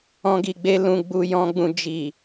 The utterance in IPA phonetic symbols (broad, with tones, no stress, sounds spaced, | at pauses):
ɔ̃˧ ɡ i˨ ɡ͡b e˧ l ũ˧ ɡ͡b u˧ j ɔ̃˧ ɡ͡b ũ˧ d͡ʒ i˨